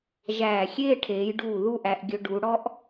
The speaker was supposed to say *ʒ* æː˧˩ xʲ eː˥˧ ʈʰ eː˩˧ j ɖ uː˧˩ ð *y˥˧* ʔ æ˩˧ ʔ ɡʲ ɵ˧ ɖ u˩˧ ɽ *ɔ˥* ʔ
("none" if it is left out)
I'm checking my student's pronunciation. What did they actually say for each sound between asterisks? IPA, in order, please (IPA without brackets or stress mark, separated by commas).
ʒ, u˥˧, ɔ˥